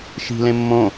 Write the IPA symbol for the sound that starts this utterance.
ʃ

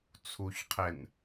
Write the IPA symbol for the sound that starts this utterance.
t͡sʰ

